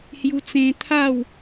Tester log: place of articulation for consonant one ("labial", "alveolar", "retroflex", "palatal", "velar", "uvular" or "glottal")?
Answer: glottal